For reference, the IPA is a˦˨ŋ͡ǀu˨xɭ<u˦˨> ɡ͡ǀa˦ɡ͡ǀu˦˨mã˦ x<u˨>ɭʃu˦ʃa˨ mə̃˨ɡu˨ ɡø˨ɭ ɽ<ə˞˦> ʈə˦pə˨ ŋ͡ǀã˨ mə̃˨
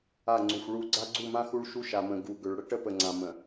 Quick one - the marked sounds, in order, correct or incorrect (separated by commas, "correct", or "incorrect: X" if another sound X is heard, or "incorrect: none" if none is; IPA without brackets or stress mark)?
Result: correct, incorrect: u˦, incorrect: ə˦